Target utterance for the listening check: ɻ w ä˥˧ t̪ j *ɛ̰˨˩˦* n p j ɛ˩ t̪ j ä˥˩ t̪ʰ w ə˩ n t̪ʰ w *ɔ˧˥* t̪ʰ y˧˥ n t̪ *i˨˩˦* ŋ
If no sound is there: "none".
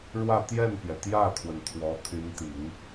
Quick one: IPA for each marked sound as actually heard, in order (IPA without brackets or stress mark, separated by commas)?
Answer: ɛ˥˩, ɔ˧˥, i˨˩˦